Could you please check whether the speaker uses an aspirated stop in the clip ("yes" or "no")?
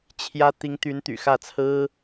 yes